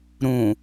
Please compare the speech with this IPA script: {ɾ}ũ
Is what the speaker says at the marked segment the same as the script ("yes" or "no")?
yes